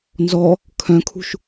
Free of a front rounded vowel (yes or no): no